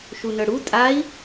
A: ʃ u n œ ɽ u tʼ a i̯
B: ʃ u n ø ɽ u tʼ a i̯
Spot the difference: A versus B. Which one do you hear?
A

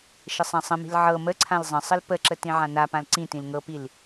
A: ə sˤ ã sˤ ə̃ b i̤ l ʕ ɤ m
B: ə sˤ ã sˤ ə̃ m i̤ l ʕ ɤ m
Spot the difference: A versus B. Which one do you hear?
B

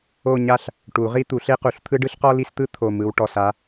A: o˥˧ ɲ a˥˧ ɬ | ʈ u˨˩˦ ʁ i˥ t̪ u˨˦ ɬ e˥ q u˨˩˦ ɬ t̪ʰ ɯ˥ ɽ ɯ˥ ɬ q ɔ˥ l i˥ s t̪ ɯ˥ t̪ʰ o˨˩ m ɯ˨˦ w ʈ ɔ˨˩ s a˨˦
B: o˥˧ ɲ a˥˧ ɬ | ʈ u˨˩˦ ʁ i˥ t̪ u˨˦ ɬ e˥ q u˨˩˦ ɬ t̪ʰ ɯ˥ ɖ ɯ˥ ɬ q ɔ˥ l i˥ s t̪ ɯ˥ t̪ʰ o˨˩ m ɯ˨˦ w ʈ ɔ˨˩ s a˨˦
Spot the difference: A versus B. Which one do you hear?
B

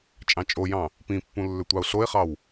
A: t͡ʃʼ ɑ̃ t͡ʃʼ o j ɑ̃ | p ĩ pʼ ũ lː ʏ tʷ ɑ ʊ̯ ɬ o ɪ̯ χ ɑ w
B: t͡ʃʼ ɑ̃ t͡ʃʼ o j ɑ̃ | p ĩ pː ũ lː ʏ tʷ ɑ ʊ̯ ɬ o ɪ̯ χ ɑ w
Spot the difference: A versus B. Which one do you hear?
B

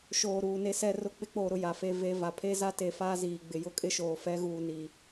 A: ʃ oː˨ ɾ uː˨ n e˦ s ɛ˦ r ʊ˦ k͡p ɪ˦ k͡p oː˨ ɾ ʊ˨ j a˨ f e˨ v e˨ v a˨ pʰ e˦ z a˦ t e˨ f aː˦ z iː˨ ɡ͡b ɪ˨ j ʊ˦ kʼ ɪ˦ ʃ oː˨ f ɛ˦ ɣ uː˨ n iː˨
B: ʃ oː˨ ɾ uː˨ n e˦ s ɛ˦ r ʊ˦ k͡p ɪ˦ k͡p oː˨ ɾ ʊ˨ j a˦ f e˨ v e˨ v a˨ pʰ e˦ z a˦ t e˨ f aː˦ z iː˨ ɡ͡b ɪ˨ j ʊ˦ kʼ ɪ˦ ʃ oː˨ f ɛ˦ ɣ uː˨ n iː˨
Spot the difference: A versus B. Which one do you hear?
A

